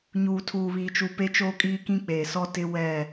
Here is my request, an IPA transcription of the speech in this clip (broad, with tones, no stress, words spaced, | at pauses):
ɲuː˨tʰuː˨βiː˨t͡ʃu˨ pe˦t͡ʃoː˦kʼiː˦kĩ˦ k͡peː˨sɔ˦tɪ˦ wɛ˦˨